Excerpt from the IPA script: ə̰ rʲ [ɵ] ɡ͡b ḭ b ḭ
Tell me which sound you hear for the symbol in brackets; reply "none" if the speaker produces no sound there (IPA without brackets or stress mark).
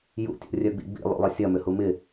œ